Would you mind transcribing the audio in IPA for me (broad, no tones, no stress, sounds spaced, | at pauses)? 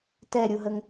t ɛ ɾʲ u ɦ ə ŋ